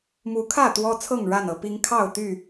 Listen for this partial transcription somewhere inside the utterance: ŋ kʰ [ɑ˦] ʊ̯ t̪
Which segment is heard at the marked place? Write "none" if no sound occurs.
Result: ɑ˥˨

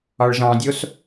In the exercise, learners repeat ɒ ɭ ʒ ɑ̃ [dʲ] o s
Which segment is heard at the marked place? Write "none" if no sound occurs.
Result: dʲ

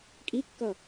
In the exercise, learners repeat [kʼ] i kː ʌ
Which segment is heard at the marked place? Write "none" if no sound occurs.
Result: kʼ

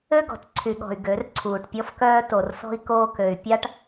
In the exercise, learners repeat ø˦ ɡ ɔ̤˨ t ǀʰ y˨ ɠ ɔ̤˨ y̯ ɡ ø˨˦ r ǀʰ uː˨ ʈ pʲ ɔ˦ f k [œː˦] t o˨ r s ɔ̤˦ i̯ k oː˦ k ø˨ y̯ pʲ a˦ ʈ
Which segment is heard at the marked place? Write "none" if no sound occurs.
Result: œː˦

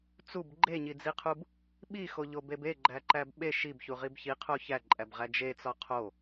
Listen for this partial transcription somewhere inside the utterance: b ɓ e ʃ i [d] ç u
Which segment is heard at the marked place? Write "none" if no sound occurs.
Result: b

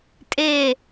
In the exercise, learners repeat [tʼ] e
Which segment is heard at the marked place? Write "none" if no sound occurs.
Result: tʼ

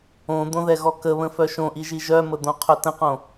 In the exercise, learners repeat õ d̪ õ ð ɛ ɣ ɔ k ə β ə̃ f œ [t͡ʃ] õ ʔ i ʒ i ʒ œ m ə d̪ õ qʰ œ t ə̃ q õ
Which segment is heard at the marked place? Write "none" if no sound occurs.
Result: ʃ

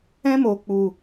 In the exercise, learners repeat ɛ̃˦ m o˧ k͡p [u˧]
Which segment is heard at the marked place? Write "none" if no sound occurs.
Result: u˧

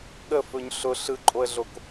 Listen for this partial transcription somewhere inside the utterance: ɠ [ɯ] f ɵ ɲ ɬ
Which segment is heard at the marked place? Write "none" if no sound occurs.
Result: ə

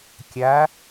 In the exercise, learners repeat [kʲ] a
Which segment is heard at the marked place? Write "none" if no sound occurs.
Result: kʲ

